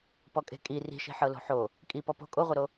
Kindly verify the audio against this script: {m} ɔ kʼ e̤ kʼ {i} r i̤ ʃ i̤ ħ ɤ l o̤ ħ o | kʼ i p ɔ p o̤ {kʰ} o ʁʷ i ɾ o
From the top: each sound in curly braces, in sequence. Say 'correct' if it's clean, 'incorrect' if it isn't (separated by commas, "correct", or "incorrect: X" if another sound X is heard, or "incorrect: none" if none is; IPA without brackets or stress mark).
incorrect: p, correct, incorrect: kʼ